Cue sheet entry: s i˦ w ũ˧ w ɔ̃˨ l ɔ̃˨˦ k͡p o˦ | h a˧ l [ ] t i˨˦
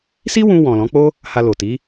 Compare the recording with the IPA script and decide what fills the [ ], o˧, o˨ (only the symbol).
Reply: o˨